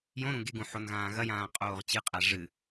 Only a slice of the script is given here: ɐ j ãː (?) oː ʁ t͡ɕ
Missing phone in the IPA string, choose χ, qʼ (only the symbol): qʼ